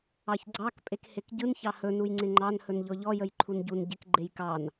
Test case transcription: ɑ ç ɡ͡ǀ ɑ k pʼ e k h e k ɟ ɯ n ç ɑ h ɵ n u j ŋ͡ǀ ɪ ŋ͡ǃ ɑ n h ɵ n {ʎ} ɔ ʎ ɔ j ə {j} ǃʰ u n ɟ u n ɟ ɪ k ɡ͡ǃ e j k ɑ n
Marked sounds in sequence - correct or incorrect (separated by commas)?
correct, correct